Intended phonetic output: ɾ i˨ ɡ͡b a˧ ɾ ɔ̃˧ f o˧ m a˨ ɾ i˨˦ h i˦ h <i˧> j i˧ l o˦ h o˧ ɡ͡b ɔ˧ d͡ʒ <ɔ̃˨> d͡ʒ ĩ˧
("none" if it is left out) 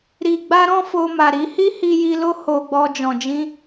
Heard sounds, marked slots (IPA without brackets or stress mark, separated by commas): i˧, ɔ̃˨